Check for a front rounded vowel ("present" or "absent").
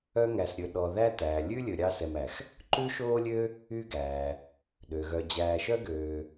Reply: present